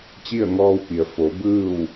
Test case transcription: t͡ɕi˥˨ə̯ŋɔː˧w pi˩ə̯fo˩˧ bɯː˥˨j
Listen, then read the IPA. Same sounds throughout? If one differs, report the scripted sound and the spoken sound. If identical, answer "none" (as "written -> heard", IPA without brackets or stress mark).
j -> w